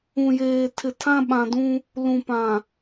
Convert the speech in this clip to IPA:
ũ˨jeː˨ tʰɪ˨tʰã˦ ɓã˨dũ˦ | lũ˨pã˨

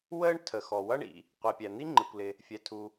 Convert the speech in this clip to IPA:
wəː˥ɳtʰə˩ xɔ˩wʌ˥ ɳḭ˩ | qʷi˩pʲæ˩n̪i˥ ŋ͡ǃɪ˩kʷlɪ˩ | fʲɛ˩tʰu˩

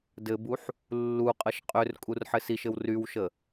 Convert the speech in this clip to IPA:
dɘbuħ | lːuqʼəʃ qʼørkʼur ħɘsiʃɘw rywʃə

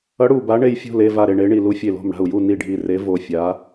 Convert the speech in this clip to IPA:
ʌ˧˥ ɽu˦˨ba˧˥ ɳe˦˨jfʲo̤˦˨le˦˨ va˦˨ɾe˦˨ɳe˧˥ɳi˦˨ lu˧˥fʲe˦˨lo̤˦˨m ɽa̤˦˨u̯ju˦˨ ni˦˨ɖʱi˦˨ re˧˥vo˦˨fʲa˧˥

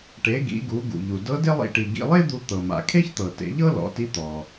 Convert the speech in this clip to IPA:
ʈe˩˧ ɡḭ˩˧ɡu˩˧ ɡṵ˩ʎu˩ dɤ˧˥de˥lˠḭ˧ʈi˩ ɡḭ˧lˠe˥d̪u˧ t̪ɤ˩ma̰˩ kʰe˥çt̪ɤ˩tḛ˩˧ʎɤ˥ lɔ̰˩˧ti˧˥ t̪ɔ˩

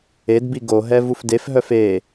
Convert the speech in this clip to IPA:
edbi ɡoɦɛ vufdefɦœf e

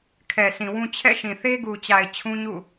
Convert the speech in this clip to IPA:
kʰɛ˨ sĩ˨wũ˦ t͡ɕʰɛ̰˦˨ ʃĩ˨θe˦ɡu˨t͡ɕa˨ɪ̯ t͡ɕʰũ˦ɲṵ˦˨

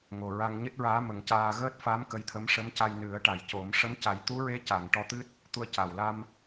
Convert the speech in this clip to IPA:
ŋo˨˩ɹa˧ŋ ɲɨ˦˥t̚ɹaː˧˥ mə˨˩˦ŋcaː˧ ɣəː˦˥t̚fa˧˥m kə˧˥jt̪ʰə˧˥m ʂə˧˥mca˧j nɨ˨˩˦ə̯ʈa˨˩jco˨˩˦m ʂə˧˥mca˨˩˦j t̪u˧˥ɹe˧˥ca˨˩˨ŋ ʈɔ˧t̪ɨ˦˥t̚ | t̪u˧ə̯ca˨˩wla˧m

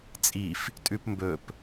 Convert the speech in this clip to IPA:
t͡sʼif | tʼʉpmbɵp

